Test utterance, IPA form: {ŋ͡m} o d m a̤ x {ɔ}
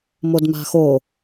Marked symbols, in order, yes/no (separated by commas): no, no